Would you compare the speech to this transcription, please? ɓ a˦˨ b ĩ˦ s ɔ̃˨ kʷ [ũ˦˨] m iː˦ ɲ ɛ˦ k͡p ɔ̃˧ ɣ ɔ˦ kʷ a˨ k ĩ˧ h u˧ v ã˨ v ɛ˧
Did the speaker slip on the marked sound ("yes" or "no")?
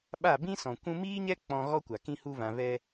yes